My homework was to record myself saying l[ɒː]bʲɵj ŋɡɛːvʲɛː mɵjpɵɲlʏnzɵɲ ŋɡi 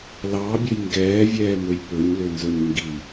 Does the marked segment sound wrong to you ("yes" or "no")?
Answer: yes